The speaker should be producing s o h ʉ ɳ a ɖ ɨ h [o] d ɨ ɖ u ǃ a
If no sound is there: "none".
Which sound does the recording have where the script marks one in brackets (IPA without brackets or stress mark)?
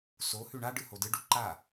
o